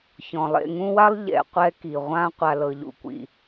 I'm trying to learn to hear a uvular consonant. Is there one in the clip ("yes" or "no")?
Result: yes